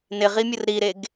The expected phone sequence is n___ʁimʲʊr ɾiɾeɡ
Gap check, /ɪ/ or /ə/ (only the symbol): ɪ